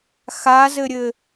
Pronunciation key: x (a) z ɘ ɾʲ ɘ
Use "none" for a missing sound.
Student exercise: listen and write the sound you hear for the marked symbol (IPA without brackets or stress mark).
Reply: a